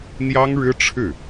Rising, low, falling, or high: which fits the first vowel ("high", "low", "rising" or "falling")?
high